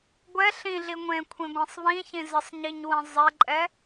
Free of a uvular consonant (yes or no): yes